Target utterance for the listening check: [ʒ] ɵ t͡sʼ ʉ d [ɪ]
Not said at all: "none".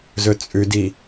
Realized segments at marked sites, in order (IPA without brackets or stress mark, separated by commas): z, i